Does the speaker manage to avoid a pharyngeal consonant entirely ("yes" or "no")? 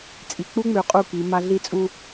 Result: yes